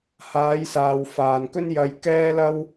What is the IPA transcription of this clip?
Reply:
h aː˨˧ j s aː˨ w f aː˨ n k ɵ˥ n j ɐ˧ j k ɛː˥ l ɐ˥ w

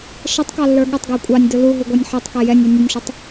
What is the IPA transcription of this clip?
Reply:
ʃ ɛ tˤ k ɑ lː ə˞ ɠ ə tˤ ɡ æ kʷʼ ɑ nʲ d ʊ l u ɦ u ɡʷ ɑ nʲ ħ ɛ tˤ k ɛ j ɛ nʲ ə˞ nʲ ʌ nʲ ʃ ʊ tˤ

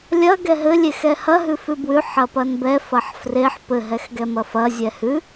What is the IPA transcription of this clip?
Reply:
lʲ ɐ ɡ ɛ ɦ ɘ lʲ e x ɛ h ɐ ɦ ʉ f ʉ b w ʉ ħ ɐ p ɐ n b ɛ f ɐ ħ f r e ħ p ɘ ɦ ɛ x ɡ ɛ m ɐ f ɐ zʲ ɛ h ʉ

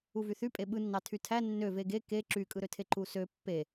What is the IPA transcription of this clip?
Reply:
u v y θ y pʼ e ɓ ɯ nː ɑ tʰ y tʰ æ nː ø v e ɡ e k e ǁ y kʼ ɯ ɾ ø tʰ e ǃ u s ø pː e

